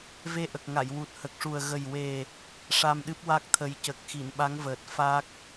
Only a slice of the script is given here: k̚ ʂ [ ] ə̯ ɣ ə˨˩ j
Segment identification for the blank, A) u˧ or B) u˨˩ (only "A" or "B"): B